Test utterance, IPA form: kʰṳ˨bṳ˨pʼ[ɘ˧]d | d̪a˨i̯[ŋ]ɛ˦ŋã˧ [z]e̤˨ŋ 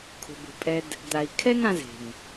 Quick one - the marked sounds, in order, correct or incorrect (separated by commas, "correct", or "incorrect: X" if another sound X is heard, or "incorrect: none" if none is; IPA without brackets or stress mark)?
incorrect: ɛ˧, incorrect: kʰ, correct